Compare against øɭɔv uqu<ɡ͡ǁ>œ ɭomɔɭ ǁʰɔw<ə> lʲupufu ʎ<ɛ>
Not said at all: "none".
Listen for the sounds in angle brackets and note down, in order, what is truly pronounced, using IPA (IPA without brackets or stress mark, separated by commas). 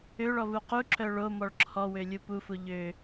ǁ, ø, ø